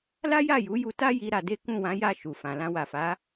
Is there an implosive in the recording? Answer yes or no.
no